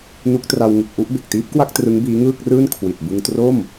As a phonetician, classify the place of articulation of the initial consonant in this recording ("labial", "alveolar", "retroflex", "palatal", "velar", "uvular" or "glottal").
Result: alveolar